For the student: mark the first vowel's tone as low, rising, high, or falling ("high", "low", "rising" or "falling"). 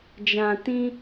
low